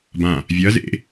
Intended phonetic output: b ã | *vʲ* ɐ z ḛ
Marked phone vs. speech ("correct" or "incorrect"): correct